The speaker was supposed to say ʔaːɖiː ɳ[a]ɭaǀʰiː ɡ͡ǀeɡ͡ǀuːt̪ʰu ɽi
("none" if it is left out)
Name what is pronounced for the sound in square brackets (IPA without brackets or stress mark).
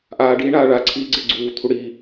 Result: aː